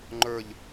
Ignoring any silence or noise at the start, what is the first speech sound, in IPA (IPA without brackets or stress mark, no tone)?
ŋ͡ǃ